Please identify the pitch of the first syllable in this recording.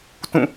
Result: falling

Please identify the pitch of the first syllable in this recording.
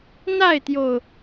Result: falling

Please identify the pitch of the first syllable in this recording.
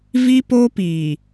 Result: high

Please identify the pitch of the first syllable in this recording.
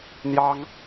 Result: high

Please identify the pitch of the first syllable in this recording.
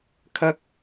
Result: rising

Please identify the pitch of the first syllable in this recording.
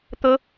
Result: high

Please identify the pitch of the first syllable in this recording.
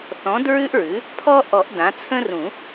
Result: rising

